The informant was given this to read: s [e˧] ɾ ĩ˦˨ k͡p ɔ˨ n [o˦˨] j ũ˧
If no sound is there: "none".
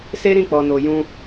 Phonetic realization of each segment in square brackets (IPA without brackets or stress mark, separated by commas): e˦, o˨